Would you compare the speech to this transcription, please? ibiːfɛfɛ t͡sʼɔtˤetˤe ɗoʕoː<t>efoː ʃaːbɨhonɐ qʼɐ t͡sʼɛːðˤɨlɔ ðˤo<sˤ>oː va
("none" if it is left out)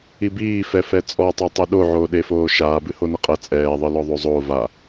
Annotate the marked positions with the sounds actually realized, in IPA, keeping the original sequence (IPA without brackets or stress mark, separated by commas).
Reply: ɗ, zˤ